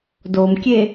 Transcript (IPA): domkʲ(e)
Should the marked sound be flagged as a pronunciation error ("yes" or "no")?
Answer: no